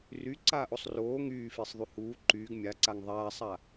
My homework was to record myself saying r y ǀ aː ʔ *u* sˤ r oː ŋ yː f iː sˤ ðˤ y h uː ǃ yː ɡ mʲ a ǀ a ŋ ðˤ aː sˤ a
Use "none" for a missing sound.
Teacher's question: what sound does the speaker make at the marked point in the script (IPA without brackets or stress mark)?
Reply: o